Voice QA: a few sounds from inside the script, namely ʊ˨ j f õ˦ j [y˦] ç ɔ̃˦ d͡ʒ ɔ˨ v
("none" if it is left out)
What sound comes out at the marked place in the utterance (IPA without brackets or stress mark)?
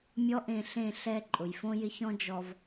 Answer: ɪ˦